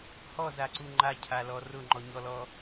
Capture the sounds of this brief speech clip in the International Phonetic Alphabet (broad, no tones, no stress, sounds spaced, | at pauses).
h ɔ z a ǀ u ŋ͡ǃ a cʰ a l ɔ r ʊ ŋ͡ǃ ɔ ɲ ɔ l ɔ